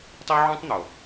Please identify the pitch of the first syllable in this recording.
high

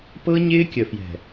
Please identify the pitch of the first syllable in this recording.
high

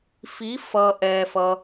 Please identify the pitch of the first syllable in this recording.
rising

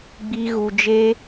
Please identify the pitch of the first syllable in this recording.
low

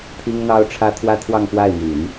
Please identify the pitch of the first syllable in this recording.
high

